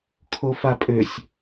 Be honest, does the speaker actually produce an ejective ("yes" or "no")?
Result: yes